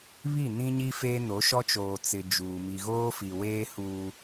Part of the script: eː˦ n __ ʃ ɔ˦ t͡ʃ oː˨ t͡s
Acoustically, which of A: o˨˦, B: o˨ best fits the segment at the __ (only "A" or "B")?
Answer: A